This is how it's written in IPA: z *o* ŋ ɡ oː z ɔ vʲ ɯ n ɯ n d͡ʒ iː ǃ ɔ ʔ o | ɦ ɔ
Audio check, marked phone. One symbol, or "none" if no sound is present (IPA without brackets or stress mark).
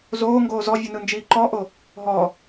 oː